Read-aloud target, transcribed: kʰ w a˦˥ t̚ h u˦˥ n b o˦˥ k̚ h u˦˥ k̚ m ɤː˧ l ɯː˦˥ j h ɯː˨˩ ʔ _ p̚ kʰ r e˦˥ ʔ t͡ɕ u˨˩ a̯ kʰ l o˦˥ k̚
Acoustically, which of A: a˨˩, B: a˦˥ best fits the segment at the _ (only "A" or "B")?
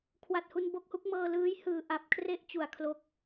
A